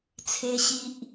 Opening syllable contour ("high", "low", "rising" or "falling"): high